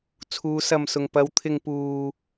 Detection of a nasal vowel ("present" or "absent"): absent